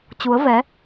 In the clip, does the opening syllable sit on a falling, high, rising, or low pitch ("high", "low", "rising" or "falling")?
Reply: rising